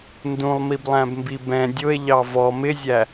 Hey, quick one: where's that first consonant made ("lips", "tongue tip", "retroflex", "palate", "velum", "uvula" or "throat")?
tongue tip